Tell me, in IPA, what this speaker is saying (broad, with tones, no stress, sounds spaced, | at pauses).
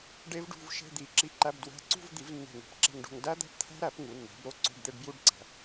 ɖ e˦˥ v ɖ ṳ˧˥˧ v ʃ e̤˧˥˧ d̪ i˨˩˦ ǁ i˧˥˧ ǃ æ˧˥˧ b d w æ̤˧˥˧ ǀ ṳ˥˧ v d̪ i˨˩˦ v nː e̤˧˩ ŋ e̤˧˩ p ǁ e̤˥˧ ŋ ɖ o̤˥˧ ŋ d æ˦˥ d̪ æ̤˦˥ p t̪ʰ æ̤˦˥ ɾ æ˨˩˦ p ŋ u˩˥ nː æ̤˩˥ b ɾ o˥˧ ǀ o̤˧˥˧ ɖ d̪ e˥˧ ɖ b j u˥˧ ɖ ǀ æ̤˨˩˦